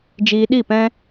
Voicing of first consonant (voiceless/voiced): voiced